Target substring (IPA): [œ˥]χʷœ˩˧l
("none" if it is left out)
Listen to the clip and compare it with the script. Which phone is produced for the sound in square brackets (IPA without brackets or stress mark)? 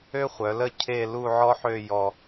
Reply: ø˥